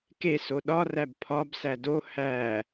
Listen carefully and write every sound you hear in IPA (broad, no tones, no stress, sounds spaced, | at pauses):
k e s o ɗ ɒ r æ b pʰ ɒ b s æ d o h æ